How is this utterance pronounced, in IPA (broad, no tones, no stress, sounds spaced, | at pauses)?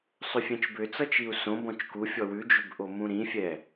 sˤ ʏ fʲ ɛ̃ t͡ʃ b ʏ t͡s ʌ t͡ʃ i u̯ s õ b ɔ̃ t͡ʃ k u fʲ ɔ w ʉ d͡ʒ ʏ b ʔ o m ũ ɾ ĩ fʲ ɛ